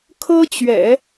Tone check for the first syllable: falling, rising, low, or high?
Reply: high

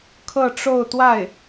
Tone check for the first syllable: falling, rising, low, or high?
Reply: falling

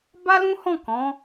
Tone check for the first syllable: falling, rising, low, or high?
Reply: high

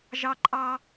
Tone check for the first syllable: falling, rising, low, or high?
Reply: high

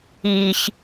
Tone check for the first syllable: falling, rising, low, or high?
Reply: low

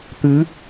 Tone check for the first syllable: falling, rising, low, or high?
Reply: rising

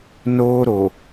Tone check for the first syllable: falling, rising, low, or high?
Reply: high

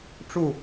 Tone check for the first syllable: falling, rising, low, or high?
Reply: falling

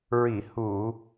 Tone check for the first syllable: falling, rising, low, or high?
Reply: low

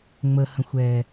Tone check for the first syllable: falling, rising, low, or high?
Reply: low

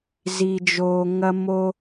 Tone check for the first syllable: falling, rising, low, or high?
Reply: low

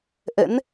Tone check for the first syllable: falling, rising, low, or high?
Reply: rising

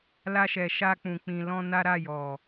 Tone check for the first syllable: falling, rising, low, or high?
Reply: high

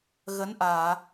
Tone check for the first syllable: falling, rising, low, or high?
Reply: rising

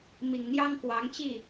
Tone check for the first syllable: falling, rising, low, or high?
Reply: low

